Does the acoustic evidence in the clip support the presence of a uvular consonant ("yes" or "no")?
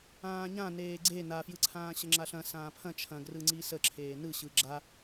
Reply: no